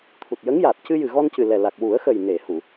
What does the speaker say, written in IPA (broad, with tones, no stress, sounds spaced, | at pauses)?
t̪ʰ u˨˩ t̚ j ə˧˥ ŋ j aː˨˩ t̚ c ɨ˧ j ɨ˨˩ ɣ ɔ˧ n c ɨ˨˩ l ɛ˨˩ l a˨˩ k̚ w u˨˩˦ ə̯ x ə˨˩ j n e˨˩˨ h u˨˩˨